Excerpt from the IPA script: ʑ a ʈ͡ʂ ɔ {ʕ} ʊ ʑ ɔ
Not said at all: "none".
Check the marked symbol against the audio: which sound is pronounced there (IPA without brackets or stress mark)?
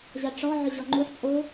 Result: ʕ